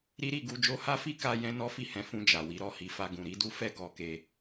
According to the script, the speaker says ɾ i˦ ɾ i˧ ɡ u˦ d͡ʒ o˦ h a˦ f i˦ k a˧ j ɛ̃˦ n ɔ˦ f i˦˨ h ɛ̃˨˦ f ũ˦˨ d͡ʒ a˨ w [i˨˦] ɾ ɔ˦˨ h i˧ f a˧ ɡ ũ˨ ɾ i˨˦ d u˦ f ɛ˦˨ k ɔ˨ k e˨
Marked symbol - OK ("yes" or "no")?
yes